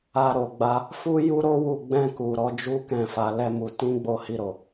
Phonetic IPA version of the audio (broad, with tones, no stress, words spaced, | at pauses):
a˧ ɾo˨ɡ͡ba˧ | fu˦ju˦ɾo˦wu˦˨ ɡ͡bɛ̃˧ku˨ ɾɔ˨˦ d͡ʒu˦kɛ̃˦˨ fa˧lɛ˦mu˧ tĩ˦ɡ͡bo˦˨hi˧ɾo˨